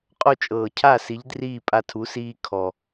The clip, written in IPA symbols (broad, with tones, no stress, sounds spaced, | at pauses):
qʼ o˥˨ t͡ʃʼ ɤː˨˩ cʰ a˥˨ s i˨˥ ʎ d r iː˥˨ pʼ a˦ tʰ u˨˥ s iː˦ kʰ ɔ˨˩